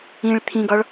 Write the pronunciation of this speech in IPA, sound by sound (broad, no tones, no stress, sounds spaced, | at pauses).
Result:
ĩ ɭ t̪ʰ ĩ ɡ ɒ ɭ